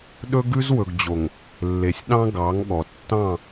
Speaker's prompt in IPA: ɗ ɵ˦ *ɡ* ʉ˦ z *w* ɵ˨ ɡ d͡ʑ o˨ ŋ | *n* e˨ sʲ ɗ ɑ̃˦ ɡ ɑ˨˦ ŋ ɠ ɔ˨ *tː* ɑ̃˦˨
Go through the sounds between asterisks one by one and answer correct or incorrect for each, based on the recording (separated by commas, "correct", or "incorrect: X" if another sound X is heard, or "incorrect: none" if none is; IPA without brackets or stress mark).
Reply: correct, correct, incorrect: lː, correct